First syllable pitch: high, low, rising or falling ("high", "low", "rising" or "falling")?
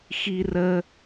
high